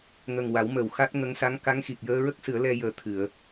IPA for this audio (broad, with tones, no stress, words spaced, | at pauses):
ŋə˨˩ŋ wa˨˩˦w mə˨˩˨w xa˦˥t̚ŋə˧˥ŋ sa˧˥ŋ ka˧˥ŋxi˨˩k̚ jəː˧ɹə˦˥k̚ sɨ˨˩˦ə̯lɛ˧ jəː˨˩t̪ʰɨ˨˩˨ə̯